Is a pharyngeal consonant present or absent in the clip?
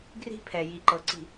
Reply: absent